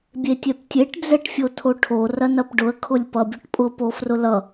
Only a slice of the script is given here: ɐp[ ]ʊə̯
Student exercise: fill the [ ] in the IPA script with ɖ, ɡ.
ɖ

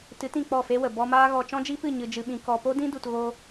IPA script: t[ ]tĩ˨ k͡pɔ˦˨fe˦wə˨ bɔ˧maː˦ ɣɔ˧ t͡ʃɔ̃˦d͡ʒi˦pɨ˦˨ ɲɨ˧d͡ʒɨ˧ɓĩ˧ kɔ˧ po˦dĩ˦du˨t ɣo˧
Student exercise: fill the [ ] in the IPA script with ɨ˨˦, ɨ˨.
ɨ˨˦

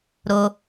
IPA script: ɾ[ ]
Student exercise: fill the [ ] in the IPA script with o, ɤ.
o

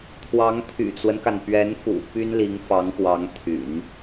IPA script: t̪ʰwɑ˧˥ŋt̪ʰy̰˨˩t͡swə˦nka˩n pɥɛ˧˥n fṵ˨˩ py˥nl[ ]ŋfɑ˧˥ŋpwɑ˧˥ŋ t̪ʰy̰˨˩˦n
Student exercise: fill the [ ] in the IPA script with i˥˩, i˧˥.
i˧˥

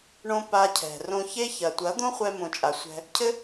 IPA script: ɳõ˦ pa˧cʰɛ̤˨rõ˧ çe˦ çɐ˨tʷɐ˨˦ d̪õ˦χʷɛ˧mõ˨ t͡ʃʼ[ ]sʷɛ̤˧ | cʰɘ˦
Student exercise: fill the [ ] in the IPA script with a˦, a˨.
a˨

